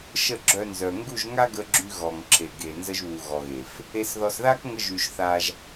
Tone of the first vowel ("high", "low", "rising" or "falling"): falling